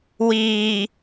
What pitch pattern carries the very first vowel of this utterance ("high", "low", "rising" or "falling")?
low